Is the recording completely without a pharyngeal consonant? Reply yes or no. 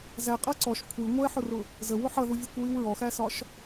no